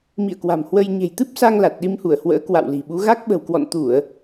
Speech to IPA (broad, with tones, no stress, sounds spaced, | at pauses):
m ḭ˧˨ ə̯ k w a̤˨˩ m h w ə˧ j ɲ e̤˨˩ j t̪ ɨ˦˥ p̚ s a˧ ŋ l a˨˩ t̚ ɗ i˧ m h u˧˩ ə̯ h w ə̰ː˧˥ k w a̰˧˨ w l i̤˨˩ ɓ u˨˦ ɣ a˦˥ k̚ ɓ ə̤˨˩ w k w ɔ̰˧˨ n t̪ u˧˩˨ ə̯